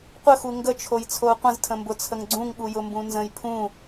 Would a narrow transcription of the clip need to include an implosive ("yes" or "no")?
yes